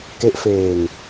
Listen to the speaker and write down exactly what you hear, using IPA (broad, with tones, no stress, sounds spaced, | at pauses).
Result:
k e˦˥ ʔ f eː˧ ŋ